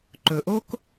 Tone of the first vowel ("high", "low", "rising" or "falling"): low